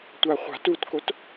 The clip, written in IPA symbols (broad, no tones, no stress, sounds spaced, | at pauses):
tʷ a χʷ a̤ t u t k o t